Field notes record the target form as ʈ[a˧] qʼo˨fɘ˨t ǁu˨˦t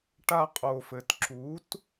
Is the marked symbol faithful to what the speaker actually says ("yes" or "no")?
yes